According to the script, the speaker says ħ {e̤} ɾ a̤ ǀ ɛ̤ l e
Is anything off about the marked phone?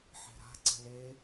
yes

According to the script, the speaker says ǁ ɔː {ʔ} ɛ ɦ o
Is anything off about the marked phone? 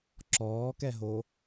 yes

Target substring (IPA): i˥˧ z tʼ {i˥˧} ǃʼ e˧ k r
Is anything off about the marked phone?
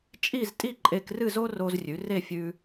no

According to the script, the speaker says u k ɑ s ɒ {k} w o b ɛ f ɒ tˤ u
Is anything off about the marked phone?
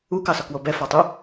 no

